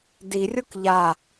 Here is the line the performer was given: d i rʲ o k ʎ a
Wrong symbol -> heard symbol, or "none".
none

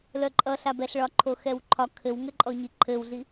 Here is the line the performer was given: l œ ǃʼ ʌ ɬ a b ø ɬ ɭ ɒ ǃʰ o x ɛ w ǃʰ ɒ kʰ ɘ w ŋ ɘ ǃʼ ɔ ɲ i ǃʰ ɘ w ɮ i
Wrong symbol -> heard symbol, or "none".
ø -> ɛ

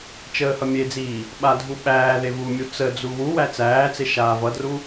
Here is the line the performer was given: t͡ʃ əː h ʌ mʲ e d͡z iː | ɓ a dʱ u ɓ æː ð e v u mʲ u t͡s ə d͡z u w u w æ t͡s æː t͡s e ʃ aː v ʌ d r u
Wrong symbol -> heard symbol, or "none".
none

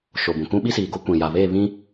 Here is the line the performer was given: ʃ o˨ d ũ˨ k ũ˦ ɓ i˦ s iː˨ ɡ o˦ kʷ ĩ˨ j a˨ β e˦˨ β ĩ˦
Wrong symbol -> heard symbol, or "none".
d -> b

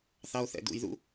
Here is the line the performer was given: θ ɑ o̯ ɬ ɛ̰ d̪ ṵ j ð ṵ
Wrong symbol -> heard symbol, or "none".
ɬ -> θ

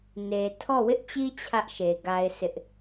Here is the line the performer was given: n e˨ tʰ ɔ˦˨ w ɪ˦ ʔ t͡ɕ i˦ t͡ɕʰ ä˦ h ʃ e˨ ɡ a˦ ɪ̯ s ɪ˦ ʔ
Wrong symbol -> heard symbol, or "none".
h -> ʔ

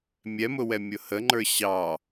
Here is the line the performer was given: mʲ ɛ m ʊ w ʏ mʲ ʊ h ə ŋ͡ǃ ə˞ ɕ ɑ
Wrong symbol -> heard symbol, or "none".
ʏ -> ɛ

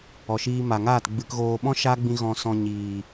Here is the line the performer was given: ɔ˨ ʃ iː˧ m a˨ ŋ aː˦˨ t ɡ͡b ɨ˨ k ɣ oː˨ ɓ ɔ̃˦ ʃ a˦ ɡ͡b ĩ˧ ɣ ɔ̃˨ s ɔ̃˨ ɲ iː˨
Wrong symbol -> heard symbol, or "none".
none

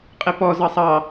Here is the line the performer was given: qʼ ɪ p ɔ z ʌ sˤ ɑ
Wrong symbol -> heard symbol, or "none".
none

